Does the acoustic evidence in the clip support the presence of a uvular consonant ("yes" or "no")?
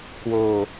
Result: no